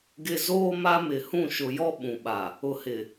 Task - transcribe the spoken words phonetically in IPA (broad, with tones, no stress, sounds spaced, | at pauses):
ɡ ɪ˨ z oː˦ m a˦ m ɪ˨ h ũ˦˨ ʃ ʊ˨ j ɔ˦ ɓ ũ˨ ɓ a˨ | ʊ˨ h ɪ˨